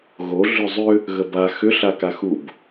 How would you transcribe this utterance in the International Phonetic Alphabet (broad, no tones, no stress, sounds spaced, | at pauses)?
ɣ o ɮ ʏ zˤ ʏ | ɣ ə b a x ʏ ɬ a k a x u b